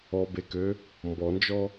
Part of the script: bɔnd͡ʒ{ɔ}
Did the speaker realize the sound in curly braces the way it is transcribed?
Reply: yes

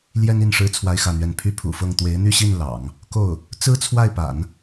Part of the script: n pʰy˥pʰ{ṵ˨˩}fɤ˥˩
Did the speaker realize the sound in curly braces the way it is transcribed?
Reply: yes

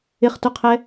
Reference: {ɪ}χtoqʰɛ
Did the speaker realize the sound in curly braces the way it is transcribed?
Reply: yes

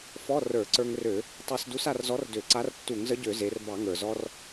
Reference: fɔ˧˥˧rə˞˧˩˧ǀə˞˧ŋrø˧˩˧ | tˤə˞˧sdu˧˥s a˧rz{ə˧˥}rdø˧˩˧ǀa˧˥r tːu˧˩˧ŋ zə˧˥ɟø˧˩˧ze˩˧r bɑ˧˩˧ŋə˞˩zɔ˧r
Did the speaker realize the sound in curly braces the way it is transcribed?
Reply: no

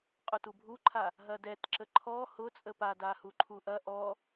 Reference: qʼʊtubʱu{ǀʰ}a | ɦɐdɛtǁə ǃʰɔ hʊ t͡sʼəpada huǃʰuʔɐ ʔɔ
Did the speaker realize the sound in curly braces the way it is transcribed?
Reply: no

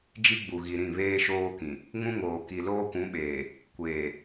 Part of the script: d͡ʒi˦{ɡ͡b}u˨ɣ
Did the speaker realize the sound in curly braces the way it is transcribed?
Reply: yes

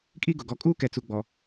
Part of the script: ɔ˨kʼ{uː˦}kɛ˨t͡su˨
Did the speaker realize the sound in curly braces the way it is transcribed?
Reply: yes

